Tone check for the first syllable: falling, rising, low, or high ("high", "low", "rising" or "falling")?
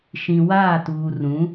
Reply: low